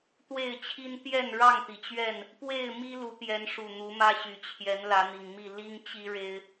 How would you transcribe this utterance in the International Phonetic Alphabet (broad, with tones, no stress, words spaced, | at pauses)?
t̪we˥˨ɪ̯t͡ɕʰi˦n t̪jɛ˥˨n ɻɑ˥˨ŋt̪i˩t͡ɕɥɛ˥˨n | pwe˥˨ɪ̯ mi˦ lu˨˦t̪jɛ˨˦nʂu˨˩ n̪u˨˦mä˦ɕy˨˩ t͡ɕʰjɛ˨˦n lä˨˦n̪i˨˩ŋmi˥˨ li˦ŋt͡ɕi˦ ɻe˦ɪ̯